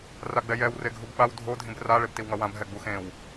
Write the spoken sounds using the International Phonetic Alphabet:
r a ɡ͡b ɛ j ɛ w r e ɡʱ u b ɓ a w dʱ o dʱ ĩ b r a ɭ e b t i w ŋ ʌ w ã b ɦ ɛ ɡ͡b u x ẽ w

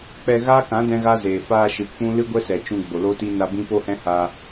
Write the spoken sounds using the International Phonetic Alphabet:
k͡p ɛ˧ ɣ aː˦ k ã˨˦ d ɛ̃˦ ɣ a˦ z eː˨ f aː˧ ʃ ɨ˨ k͡p ũ˦ l ɨ˦ ɡʷ ɛ˦ s ɛ˨ t͡ʃ ũ˧ ɡ͡b o˨ l o˦ t i˦ n a˧ b ĩ˦ p o˦ h ɛ̃˦ h aː˧

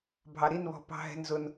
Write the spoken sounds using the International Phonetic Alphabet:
bʱ ɑ˧ ɾ i˥˧ n β ɔ̤˧ p ɑ̤˧ ɦ ɛ̤˧ n z ʊ˧ n

